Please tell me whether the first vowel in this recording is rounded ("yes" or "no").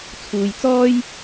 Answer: yes